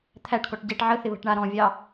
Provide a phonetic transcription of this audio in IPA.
t̪ʰæʈkɔʈ ɟeʈ ʕəθɪ βə̤ʈɳaɾɔ̃vʲɑ

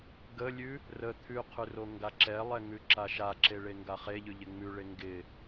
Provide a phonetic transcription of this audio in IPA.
ɡəlʲʉ | rə t̪ʰʉqʰʉ roŋɡaǁɛlˠɛ ŋʉǁaʃaǁe ɭeŋɡaχeʎʉ ʎɪŋ͡mʉɭe ŋɡɪ

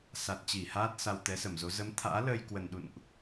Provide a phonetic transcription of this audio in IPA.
sa˨˩t̚t͡ɕi˧˩haː˦˥t̚ sa˧wt̪ɛ˨˦sə˧˩mzo˨˦ zə˨˦mt̪ʰa̰ː˧˥ləː˧j kwə˨˩nɗṵ˧˨nʔ

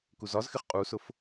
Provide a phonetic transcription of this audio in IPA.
kuzɒzxɪχ qʼusʊf

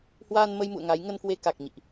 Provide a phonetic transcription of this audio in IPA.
hwaː˧nmə˧jmṵ˧˨ə̯ ŋa˨˦j ŋə˧nkwe˧ ka˨˩k̚ ɲḭ˧˨ʔ

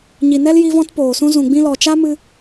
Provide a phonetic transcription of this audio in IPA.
ɲi˨nɛ˦l ji˧vɔ̃˧tpoː˨sũ˧ zũ˨ɡ͡bĩ˧lɔ˨ t͡ʃa˦mɨ˧

